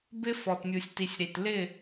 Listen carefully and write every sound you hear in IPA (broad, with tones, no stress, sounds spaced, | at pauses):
b ɪ˦ f ɔ˨ t mʲ u˨ sʲ t i˨ sʲ ɾ i˨ t l ɪ˦˨